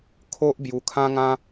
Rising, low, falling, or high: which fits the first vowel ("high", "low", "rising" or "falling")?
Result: high